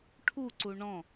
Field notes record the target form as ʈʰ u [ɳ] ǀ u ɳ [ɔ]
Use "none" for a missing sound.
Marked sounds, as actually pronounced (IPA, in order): none, ɔ̃

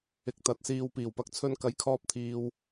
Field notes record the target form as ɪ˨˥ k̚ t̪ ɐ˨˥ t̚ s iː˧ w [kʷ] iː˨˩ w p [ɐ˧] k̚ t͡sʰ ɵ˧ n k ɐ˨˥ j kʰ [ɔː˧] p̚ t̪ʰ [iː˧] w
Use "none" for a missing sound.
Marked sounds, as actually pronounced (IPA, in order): p, ɐ˨˥, ɔː˧, iː˨

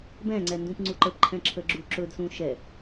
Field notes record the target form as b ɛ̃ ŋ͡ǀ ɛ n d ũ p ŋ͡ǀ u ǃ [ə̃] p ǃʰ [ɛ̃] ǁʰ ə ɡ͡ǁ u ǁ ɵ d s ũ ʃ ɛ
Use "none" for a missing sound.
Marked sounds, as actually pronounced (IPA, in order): ə, ɛ̃

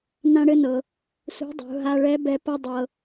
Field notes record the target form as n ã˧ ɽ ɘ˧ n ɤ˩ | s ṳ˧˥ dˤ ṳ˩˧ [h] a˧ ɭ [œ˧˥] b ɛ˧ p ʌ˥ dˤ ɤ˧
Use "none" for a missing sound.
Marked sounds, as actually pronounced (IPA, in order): ɦ, ɛ˧˥

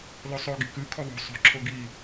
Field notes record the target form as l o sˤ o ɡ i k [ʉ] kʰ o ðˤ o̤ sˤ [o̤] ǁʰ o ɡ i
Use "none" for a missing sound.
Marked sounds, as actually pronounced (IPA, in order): ʉ, o̤

